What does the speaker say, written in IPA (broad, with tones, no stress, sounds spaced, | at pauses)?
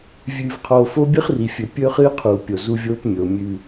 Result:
vʲ ʉ˨ v qʰ oː˨ f o˦ bʲ ɨ˦ χ r i˨ fʲ ɵ˨ pʲ ɵː˦ χ ɨː˦ qʰ uː˨ pʲ o˨ z u˦ vʲ oː˦ p mʲ o˨ mʲ ʉ˨